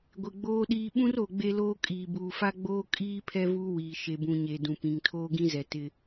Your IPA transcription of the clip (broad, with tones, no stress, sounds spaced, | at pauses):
ɡʷ ɪ˨ ɡ͡b oː˦ ɗ iː˦ ɓ ũ˦ r o˨ ɡ͡b e˦ l oː˦ kʼ iː˨ b uː˨ f a˦ ɡ͡b oː˦ kʼ iː˦ pʰ ɛ˦ v uː˦ w iː˨ ʃ e˨ b ũ˨ ɲ e˨ d ũ˨ p ĩ˨ ŋ tʰ oː˦ ɡ ĩ˦ z ɛ˨ t ɪ˦